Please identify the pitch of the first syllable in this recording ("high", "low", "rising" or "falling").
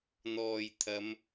low